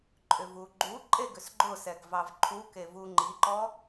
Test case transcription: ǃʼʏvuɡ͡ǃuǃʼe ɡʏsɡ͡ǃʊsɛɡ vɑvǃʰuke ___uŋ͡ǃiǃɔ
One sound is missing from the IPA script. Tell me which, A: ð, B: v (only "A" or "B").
B